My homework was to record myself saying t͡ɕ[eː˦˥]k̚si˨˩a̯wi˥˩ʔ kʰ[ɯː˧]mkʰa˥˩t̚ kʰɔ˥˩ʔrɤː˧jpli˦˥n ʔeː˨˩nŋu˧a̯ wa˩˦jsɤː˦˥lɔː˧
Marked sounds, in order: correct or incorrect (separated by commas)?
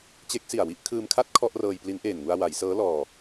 incorrect, correct